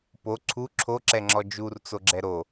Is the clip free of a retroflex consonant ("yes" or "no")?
yes